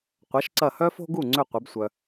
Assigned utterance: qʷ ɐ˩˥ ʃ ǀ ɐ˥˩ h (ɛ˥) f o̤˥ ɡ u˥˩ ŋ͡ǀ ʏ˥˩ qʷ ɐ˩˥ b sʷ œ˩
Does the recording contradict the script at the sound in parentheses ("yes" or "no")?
yes